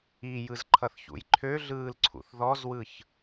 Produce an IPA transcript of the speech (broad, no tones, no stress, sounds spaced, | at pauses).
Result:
i j ɯ z ǃʰ ʌ θ ç ṵ j ǃʰ ø ɮ ɯː l ǀʰ ṵ θ ð ɔ z w ɯ ç